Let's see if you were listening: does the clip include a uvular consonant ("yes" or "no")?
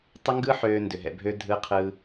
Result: yes